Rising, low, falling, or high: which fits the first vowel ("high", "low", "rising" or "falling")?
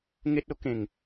high